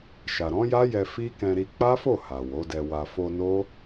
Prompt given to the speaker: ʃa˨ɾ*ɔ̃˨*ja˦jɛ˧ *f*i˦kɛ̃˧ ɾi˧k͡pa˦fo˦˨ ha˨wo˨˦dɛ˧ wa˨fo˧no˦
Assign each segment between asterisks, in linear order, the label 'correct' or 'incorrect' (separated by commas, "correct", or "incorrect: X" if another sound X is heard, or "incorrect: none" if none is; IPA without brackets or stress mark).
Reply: incorrect: ɔ̃˨˦, correct